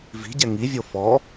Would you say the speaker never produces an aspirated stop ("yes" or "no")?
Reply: yes